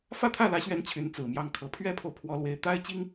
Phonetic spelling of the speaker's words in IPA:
f ä˥˧ t̪ʰ ä˥˩ l ä˧˥ ɕ ɥ ɛ˧˥ n t͡ɕʰ y˧˥ n t͡s ɹ̩˨˩ m j ɑ˥˩ ŋ kʰ ɤ˨˩ pʰ ɥ ɛ˥ pʰ o˨ ʊ̯ pʰ w ɔ˥ l w e˥ ɪ̯ t̪ a˥ ɪ̯ t͡ɕ i˥ ŋ

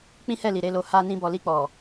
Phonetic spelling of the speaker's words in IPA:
k͡p ĩ˦ h ɛ˦˨ l i˨ ɾ e˨˦ l o˧ h a˧ n ĩ˧ b ɔ˨ l i˧ k͡p ɔ˨

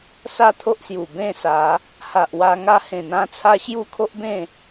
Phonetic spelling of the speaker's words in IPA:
s a˦ t̪ʰ o˦ ʔ s j u˨˩ b ẽ˥˧ s a˨˦ | h a˨ ʔ w a˧ ŋ a˥˧ h ẽ˨˩ n̪ ã˧ t͡sʰ a˧ ɕ j u˦ kʰ o˦ ʔ b ẽ˥˧

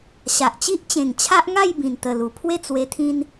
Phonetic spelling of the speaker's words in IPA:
ɕ a˨ ʔ t͡ɕ i˦ ʔ t͡ɕ ẽ˨˩ ŋ t͡ɕʰ a˦ ʔ ŋ a˥˧ j b ĩ˨˩ n t̪ ə˨˩ l u˨˩ pʰ w e˥˧ t͡s w e˧ t̪ʰ ĩ˦ n

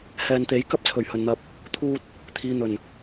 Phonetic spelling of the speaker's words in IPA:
h ɛː˨ n t̪ e˨˥ j k ɐ˥ p̚ t͡sʰ ɵ˨˩ ɥ h ɵ˨ n n̪ ɐ˧ p̚ | t̪ʰ uː˧ t̚ | t̪ʰ iː˨ n̪ ɵ˨˩ n

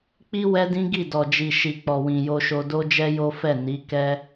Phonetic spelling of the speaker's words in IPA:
k͡p i˦ w ɛ˦ d ĩ˦ ɡ i˦˨ d ɔ˨ d͡ʒ i˨ ʃ i˨ k͡p ɔ˨ w ĩ˨ j o˧ ʃ o˧ d o˦ d͡ʒ ɛ˦ j o˦ f ɛ˦˨ n i˨˦ k ɛ˦

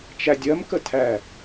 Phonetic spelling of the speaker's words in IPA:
t͡ʃ æ dʲ ɜ m k ə tʰ æ

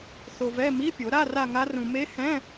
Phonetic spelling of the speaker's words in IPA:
θ o˧ v ɛ˧˥˧ m i˧˥˧ pʲ o˨˩˦ ɾ a˧˥˧ r a˥˧ ŋ a˦˥ r ũ˧ m e˦˥ h ɛ̃˧˥˧

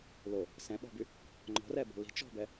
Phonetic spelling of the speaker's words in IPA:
l o | s ɛ̃ ɓ ɔ̤ b y | ŋ͡ǃ ɔ̤ r ɛ b ɔ̤ l i̤ t͡ʃ ɔ̤ b ɛ

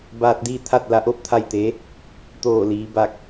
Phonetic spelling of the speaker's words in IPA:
b aː˧ t̚ d iː˥˨ t̪ʰ a˥˨ t̚ l a˧˥ ʔ o˥˨ p̚ t̪ʰ a˥˨ j t̪ e˧˥ | t̪ oː˧˩ l iː˩˧ b a˧˩ k̚

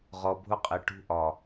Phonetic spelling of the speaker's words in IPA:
ʁ ɔ˨ bʱ ʊ˦ qʼ ɪ˨ ʈ ṳ˦ ʔ ɒ˨

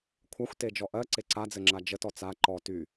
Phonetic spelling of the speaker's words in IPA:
kʷʰ a xʷ t e d͡ʒ ɔ ʔ ɜ ǀ e ǀ a d͡z ɘ ŋ͡ǁ a d͡ʒ ə t ɔ t͡s a ǃ ɔ t y

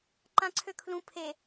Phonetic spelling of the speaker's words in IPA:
ǃ ã ǀʰ ø kʰ l ũ pʰ e

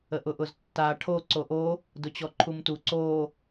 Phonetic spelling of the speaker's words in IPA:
ə ʔ ʊ ʔ ʊ z tː a ʈʰ o ǀ o ʔ o | d ʊ t͡ɕ ɔ ǃʰ u m t u ǀ o

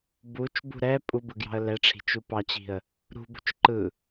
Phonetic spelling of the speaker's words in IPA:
b u t͡ʃ b ṳ ɾ ɛ pʼ u b ɯ ɡ j ɑ̤ ə̯ l ɛ ʈ͡ʂʰ i̤ t͡ʃ u p ɑ t͡ɕ i̤ ə̯ | ɾ ṳ b ṳ t͡ʃ ǃ ɯ

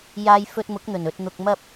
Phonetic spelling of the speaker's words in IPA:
j aː˧ j f ɵ˧ t̚ m ʊ˨˥ k̚ n̪ ɵ˨˩ n ɵ˨ t̚ n̪ ʊ˨ k̚ m ɐ˥ p̚

